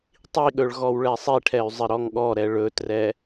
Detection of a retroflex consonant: present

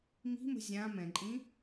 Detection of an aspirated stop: absent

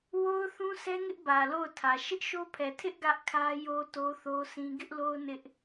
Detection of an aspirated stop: present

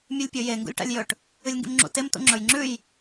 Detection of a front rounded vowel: absent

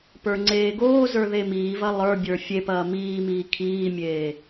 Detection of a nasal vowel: absent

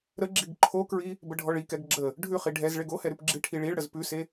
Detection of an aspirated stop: present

